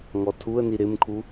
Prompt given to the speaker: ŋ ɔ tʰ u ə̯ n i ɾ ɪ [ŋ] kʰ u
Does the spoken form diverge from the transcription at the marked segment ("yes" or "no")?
yes